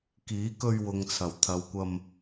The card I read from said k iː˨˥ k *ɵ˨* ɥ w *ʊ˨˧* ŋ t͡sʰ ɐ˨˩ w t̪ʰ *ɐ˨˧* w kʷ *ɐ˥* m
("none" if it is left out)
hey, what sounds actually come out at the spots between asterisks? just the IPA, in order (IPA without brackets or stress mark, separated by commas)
ɵ˧, ʊ˨, ɐ˨˧, ɐ˧